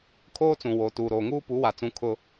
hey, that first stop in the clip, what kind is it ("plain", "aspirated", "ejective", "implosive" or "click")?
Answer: aspirated